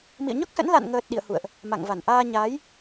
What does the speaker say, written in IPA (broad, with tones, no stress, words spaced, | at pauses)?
mḭ˧˨ə̯ɲɔ˦˥k̚sə̰˧˥n la̰˧˨nŋəː˨˩t̚ ɗḭ˧˨ə̯hṵ˧˨ə̯ʔ | ma̰˧˨ŋva˧˩n ʔaː˧ ɲaː˨˦j